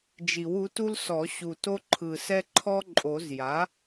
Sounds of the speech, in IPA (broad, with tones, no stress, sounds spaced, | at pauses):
d͡ʒ i˨˩˦ w u˩˥ t u˥ l s ɔ˨˩˦ ɕ u˨˩ t o˥ ǃʰ ɯ˨˩ s ɛ˥ ǃʰ ɔ˥ ǃʼ o˨˩˦ z j a˩˥